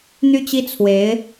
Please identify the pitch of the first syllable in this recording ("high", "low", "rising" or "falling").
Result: high